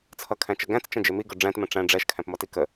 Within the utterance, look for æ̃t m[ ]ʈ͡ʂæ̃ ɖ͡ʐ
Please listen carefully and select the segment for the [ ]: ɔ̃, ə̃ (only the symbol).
ə̃